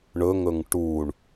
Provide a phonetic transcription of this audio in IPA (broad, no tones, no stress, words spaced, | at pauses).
ɳɵŋɵŋ ʈuɳ